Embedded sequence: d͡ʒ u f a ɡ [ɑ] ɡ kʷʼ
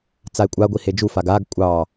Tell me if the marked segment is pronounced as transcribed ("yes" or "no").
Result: no